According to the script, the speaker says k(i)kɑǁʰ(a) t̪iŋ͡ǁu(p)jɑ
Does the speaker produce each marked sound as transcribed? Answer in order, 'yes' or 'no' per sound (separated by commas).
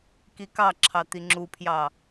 yes, no, no